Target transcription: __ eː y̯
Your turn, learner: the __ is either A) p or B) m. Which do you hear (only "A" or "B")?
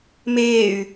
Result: B